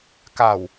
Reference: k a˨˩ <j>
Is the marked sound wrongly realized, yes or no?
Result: yes